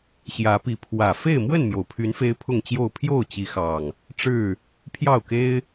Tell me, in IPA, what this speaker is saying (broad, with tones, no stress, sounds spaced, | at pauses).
ɕ j ä˨˦ p i˨˦ pʰ w ä˨˩ f e˥˨ ɪ̯ m w ə˥˨ n m j o˩ ʊ̯ pʰ y˨˦ n f e˦ ɪ̯ pʰ ʊ˥˨ ŋ t͡ɕ j o˥˨ ʊ̯ pʰ j o˥˨ ʊ̯ t͡ɕ i˨˦ x ɑ˨˩ ŋ | ʈ͡ʂ ɻ̩˥˨ | pʰ j ɑ˥˨ ʊ̯ k e˦ ɪ̯